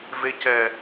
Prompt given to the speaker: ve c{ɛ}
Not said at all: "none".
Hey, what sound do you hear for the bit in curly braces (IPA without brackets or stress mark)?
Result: ɛ